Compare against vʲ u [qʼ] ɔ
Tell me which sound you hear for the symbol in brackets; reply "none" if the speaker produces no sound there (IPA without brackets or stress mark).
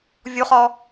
χ